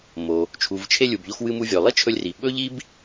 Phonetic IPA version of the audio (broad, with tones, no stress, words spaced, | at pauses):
mo˩ | t͡ʃʰu˩vt͡ʃʰe˧lʲu˩bʎo˧x wɨ˧mu˧vʲɵ˩ lˠi˥t͡ʃʰɵ˧lʲri˩ ɓɵ˥ʎi˥b